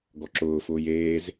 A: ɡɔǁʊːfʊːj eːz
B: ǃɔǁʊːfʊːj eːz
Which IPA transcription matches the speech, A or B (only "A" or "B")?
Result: A